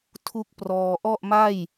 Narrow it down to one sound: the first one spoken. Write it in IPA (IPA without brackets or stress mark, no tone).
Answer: tʰ